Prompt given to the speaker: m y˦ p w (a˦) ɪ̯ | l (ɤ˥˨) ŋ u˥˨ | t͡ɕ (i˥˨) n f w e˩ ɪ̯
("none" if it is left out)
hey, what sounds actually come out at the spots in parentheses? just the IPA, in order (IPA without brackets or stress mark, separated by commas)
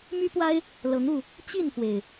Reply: a˦, ɤ˨˦, i˥˨